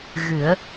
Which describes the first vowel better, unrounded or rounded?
unrounded